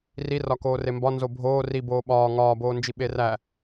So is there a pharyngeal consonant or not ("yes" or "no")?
no